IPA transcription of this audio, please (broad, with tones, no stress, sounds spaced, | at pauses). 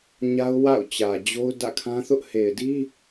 ɲ a˦ ʊ̯ w a̰˦˨ ʊ̯ t͡ɕ ä˨ d͡ʑ o˦ ʊ̯ d ä̰˦˨ kʰ ã˦ θ ʊ˦ ʔ h e˨ ɪ̯ d i˦